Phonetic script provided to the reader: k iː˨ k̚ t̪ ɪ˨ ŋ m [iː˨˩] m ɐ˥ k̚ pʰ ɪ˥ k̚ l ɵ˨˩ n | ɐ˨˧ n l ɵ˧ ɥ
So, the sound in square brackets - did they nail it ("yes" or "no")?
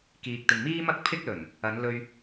no